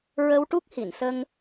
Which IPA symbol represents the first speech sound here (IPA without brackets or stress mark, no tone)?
ɹ